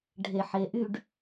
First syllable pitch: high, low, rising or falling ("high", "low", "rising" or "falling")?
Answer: low